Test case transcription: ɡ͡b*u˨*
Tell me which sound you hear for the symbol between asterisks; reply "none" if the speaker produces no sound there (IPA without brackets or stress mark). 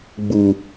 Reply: u˨